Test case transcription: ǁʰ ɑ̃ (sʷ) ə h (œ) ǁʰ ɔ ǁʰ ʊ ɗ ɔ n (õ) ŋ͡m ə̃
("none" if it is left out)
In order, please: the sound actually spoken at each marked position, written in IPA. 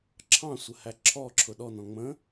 sʷ, æ, ɔ̃

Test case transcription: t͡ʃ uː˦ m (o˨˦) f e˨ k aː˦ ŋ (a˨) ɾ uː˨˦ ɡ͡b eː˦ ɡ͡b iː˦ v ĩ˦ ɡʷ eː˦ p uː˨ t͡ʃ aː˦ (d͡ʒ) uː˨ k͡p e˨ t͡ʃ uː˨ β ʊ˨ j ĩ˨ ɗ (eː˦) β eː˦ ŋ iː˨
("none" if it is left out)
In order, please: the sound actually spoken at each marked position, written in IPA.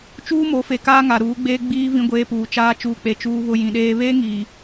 o˨˦, a˨, t͡ʃ, eː˦

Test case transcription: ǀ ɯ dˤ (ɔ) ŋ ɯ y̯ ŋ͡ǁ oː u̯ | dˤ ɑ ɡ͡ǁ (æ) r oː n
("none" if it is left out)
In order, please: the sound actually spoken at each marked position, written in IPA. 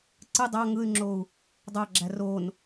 ɑ, æ

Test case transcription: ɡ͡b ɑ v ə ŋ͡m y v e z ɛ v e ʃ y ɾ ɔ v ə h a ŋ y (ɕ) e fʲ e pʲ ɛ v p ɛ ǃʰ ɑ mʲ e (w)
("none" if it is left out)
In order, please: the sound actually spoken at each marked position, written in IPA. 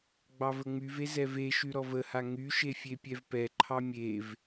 ʃ, v

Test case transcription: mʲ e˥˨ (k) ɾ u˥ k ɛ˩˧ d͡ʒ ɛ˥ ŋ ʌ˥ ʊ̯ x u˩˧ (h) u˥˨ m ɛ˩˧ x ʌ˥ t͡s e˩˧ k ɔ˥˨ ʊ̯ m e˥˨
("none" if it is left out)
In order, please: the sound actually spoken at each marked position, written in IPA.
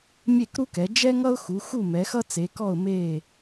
k, x

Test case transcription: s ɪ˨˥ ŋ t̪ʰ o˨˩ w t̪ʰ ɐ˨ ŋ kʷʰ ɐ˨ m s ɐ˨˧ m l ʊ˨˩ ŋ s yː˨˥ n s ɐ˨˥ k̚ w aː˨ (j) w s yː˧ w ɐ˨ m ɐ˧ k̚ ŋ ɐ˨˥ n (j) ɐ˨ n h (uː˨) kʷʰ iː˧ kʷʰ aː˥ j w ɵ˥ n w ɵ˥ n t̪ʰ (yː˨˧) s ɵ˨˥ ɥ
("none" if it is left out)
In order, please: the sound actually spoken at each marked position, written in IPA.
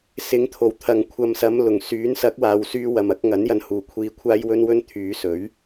none, j, uː˨, yː˨˧

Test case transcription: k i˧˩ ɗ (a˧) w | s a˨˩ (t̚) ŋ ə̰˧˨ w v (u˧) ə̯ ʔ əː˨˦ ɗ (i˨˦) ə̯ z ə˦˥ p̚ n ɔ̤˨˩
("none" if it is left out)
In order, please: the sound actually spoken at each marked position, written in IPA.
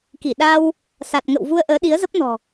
a˧, t̚, u˧, i˨˦

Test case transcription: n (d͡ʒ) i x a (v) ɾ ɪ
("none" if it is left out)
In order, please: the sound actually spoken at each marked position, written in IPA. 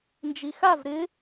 d͡ʒ, v

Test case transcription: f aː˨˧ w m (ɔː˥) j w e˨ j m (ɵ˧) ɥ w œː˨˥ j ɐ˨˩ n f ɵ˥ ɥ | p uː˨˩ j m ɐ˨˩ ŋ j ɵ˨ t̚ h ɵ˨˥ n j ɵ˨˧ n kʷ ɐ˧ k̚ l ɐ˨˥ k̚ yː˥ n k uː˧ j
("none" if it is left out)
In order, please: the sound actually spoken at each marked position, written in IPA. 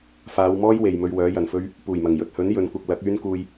ɔː˥, ɵ˧

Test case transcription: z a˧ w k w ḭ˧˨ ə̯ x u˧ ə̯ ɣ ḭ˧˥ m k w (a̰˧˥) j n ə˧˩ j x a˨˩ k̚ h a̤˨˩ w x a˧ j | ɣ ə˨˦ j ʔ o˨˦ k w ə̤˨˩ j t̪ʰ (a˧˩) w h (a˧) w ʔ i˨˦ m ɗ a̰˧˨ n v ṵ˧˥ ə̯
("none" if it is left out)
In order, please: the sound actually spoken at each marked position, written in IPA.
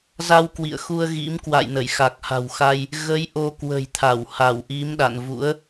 a̰˧˨, a˧˩, a˧˩

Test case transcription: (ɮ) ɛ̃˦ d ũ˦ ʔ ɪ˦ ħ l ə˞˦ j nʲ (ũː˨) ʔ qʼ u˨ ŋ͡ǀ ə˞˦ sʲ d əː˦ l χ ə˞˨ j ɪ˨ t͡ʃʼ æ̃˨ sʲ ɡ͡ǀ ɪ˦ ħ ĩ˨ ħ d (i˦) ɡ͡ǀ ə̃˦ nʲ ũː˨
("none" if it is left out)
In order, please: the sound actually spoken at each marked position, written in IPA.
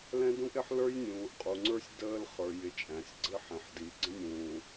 l, ũː˨, i˨˦

